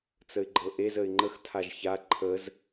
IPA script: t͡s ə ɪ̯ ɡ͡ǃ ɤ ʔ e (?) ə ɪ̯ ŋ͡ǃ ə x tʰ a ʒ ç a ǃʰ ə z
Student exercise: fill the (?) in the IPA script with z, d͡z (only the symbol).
z